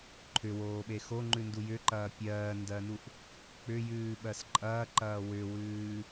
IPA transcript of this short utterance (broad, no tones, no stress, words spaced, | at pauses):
ǃʰʏwoːɓe xoŋ͡ǃʉndu jʏǃɐː pʲɜːndɜnuʔ | k͡pʏjʉːɓɜs ǃʼɐːǃɐː wʏwʉː